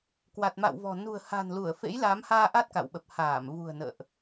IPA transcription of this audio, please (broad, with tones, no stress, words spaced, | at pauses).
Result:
kwa˨˩t̚ma̰˧˨wvɔ̤˨˩ nṳ˨˩ə̯ha̤˨˩nlu˧˩ə̯ fḛ˧˥jla˨˦mhaː˧ ʔa˦˥t̚ka̰˧˨wɓə˨˩p̚ haː˧˩m vṳ˨˩ə̯nə̰ː˧˨ʔ